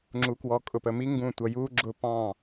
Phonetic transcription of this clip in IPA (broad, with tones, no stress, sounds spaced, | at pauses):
ŋ͡ǁ u˧ k w ɔ˧ kʼ ʊ˧˩˧ p ə˧ m i˥ ŋ ɡ ũ˥˩ tʷ ʌ˧ j u˥ ɡ͡ǁ ʊ˥˩ p ɑ̃˥˩